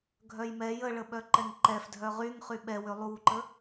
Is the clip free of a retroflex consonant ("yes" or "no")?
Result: no